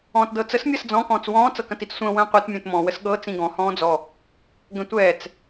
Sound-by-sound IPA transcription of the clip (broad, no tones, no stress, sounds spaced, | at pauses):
ɔ̃ː t d ɤ t͡s ə s mʲ ɐ s d͡z ɔ̃ k ɔ̃ː t͡s w ɔ̃ː t͡s ɤ k ɐ̃ t i t͡s sʷ ə̃ː w ə̃ː qʷ ɤ t mʲ ə̃ː t m ɔ̃ w ə s ɠ ɤ t͡s ĩ ɡ ɔ̃ h ɔ̃ː d͡z ɔ | ɡ ə̃ tʷ ɛː t͡s